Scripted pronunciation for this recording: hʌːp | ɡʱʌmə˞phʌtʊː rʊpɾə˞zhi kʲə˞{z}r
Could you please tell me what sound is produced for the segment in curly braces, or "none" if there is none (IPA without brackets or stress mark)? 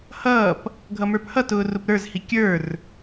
none